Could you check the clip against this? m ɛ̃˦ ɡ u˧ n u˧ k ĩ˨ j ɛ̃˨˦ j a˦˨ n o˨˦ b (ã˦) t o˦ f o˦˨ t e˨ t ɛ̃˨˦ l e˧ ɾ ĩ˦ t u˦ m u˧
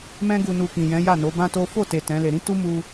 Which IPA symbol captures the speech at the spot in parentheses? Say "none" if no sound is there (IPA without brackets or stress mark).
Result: ã˦